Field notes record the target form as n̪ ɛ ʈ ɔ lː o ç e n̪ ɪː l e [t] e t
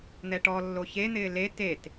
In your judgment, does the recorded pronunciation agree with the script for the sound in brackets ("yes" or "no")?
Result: yes